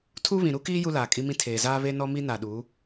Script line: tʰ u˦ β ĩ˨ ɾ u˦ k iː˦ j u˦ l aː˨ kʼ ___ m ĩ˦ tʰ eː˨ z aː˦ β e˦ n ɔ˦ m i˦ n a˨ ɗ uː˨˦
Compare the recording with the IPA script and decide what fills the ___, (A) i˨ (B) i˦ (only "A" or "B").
B